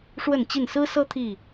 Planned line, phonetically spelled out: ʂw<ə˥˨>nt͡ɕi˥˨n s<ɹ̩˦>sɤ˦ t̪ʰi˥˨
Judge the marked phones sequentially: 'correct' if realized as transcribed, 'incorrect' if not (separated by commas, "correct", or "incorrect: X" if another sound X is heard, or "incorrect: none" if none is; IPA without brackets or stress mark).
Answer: correct, correct